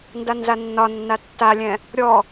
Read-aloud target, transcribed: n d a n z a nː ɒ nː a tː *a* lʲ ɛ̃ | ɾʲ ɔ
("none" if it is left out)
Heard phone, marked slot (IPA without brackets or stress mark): a